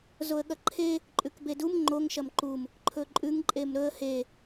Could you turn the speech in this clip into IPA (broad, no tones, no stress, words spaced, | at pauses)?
zoə̯ɠɐǃʰe | ǃʼʉkbedum ŋ͡ǃoŋ ʃɐmǃum | ǃʰɵǃʼʉŋ ǃʼemɾɵə̯ he